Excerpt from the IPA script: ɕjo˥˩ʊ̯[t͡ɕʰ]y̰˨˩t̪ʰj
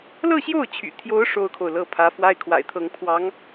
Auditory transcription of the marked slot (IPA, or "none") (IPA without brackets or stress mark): t͡ɕʰ